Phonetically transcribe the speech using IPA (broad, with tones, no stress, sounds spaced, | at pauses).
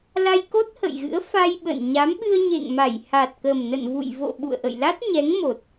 l a˧ j k o˦˥ t̚ h ə̰˧˨ j ɣ ɨ̰˧˥ ə̯ f a˧ j ɓ ə̰˧˨ n ɲ a˨˦ m ɓ ɨ˧ ə̯ ɲ ḛ˧˨ ŋ m a˧˩ j h a˨˩ t̚ k ə˨˩ m n ə̰˧˨ n v ṵ˧˨ j v o̰˧˨ ɓ ṵ˧˨ ə̯ ʔ ə̰˧˨ j l a˦˥ t̚ ɲ ɛ˨˦ ŋ m o˨˩ t̚